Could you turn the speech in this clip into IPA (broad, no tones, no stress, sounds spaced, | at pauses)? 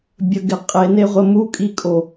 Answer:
bʲ ə ɡ ɪ qʼ e n e ʁʷ ə m u kʼ i kʼ o